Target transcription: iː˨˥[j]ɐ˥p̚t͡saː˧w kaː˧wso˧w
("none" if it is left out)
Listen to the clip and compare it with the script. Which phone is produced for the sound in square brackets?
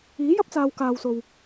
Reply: j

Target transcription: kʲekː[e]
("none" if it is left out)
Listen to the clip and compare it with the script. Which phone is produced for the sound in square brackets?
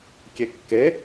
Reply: e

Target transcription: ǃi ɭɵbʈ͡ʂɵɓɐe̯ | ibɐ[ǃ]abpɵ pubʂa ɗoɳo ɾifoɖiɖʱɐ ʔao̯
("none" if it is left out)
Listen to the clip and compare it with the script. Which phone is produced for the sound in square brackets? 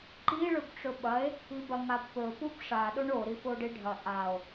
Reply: ŋ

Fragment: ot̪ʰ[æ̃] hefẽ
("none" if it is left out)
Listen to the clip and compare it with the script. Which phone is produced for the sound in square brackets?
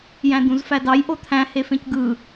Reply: æ̃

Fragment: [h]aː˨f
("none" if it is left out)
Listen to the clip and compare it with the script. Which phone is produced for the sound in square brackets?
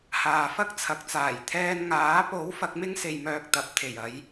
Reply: h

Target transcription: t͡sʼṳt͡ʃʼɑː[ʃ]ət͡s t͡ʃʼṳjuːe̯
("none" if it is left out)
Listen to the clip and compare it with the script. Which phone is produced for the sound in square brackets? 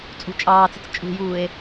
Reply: t͡s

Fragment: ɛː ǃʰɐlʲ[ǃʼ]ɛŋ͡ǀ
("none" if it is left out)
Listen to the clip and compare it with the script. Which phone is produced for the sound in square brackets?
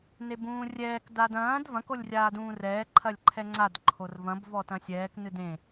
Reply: ǃʰ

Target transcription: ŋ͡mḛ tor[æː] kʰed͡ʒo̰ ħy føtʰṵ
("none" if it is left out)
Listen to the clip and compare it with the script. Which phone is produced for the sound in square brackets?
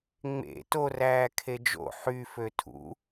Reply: æː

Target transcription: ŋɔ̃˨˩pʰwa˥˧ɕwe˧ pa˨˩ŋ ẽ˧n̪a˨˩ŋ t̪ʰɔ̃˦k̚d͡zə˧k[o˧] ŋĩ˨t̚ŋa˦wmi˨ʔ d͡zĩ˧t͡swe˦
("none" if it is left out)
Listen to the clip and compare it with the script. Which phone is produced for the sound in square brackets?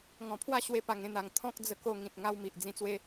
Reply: o˧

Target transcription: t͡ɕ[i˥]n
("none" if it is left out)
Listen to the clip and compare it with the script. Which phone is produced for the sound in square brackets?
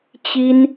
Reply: i˥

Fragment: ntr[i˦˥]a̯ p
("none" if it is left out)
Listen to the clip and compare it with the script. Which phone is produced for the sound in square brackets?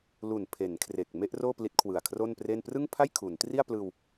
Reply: i˥˩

